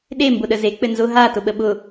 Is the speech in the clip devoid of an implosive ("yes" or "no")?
no